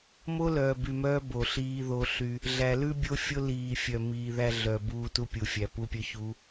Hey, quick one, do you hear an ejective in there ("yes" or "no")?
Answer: no